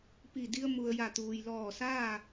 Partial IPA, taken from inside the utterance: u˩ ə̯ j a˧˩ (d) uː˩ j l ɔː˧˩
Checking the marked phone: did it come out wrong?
yes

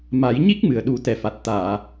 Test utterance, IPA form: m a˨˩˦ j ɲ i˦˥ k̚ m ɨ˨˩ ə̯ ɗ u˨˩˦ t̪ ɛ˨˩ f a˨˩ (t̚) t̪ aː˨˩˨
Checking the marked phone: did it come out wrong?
no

